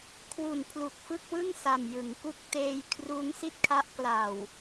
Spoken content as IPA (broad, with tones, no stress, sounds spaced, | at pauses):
kʰ w u˨˩ n pʰ l u˨˩ k̚ f ɯ˥˩ k̚ w ɯ˥˩ ŋ s a˨˩ m j ɯ˩˦ ŋ k u˥˩ k̚ t eː˧ j kʰ r uː˦˥ ŋ s i˥˩ t̚ kʰ a˦˥ ʔ k l a˨˩ w